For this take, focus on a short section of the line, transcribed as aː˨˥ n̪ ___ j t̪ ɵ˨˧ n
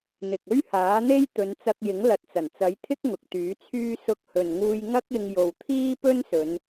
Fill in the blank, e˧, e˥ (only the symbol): e˥